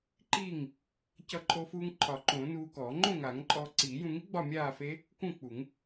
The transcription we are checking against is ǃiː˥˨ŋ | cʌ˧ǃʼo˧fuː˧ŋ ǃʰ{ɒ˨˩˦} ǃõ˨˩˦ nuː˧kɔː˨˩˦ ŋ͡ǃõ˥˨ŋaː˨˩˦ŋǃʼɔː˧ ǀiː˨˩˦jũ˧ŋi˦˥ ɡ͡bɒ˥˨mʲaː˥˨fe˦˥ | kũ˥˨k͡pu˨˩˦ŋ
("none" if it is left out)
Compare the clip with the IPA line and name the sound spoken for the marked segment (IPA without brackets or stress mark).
ɒ˨˩˦